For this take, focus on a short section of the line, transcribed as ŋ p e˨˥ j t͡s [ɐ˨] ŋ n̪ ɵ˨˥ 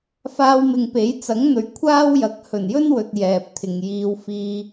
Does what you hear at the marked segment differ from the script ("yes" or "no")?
yes